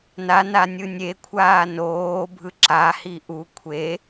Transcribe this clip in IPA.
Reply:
nana nʲɯnʲekʷʰaː noːbʱɯ ǁahi ʔu kʷʰe

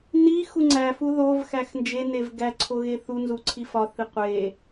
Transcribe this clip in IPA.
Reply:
nixu ŋ͡ǀæfu ðov xæxnd͡ʒenev ɡæǀʰo ɣeθunzu ǀʰifɒθi qʷe

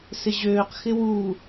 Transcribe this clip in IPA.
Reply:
sɪʑøːq xɪwu

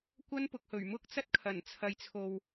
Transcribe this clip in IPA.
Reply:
kʷɐ˥npʊ˨k̚hɵ˨˩ɥ mʊ˥k̚t͡sɐ˥t̚kʰɐ˨˩n t͡sʰɐ˨jt͡sʰo˨w

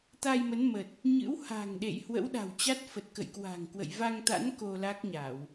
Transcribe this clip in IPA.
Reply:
t̪a˧jmə˨˦n mə˨˩t̚ | ɲɨ̰˧˥wha̤˨˩ŋɗḛ˧˨j hwə̰˧˥wɗa̤˨˩wt͡ɕa˦˥t̚fə˨˩t̚ kə̰˧˨jkwa̤˨˩ŋkwə̰˧˨j va˧ŋt̪a̰˧˥n ko˧la˦˥k̚ɲa˧˩˨w

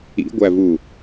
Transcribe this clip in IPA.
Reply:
ḭɡʷævu

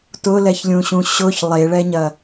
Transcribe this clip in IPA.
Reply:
tʊlɛçlʲũɕũ ɕʊç lˠeɭɛɲɐ

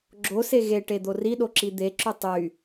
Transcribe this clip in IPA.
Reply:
ɡ͡ǁose ɣeʈed̪o riɗoǁi d̪eǁy tˤy

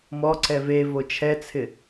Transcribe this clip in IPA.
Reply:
mɔ ǀɛve vot͡ʃʰɛt͡sʰɪ

